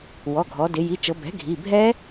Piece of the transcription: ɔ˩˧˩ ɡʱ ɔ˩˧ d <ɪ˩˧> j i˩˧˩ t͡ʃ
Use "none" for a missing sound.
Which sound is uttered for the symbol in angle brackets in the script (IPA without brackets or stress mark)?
ɪ˩˧